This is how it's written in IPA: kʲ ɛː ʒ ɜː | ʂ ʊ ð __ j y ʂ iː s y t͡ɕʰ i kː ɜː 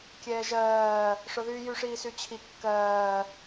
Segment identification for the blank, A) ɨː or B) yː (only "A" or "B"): B